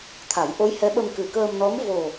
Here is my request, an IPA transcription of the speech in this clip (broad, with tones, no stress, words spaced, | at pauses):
t̪ʰa˨˩˦jʔo˧˥jhɛ˧˥ɓə˧m kɨ˨˩kəː˧mnɔ˧˥m vo˨˩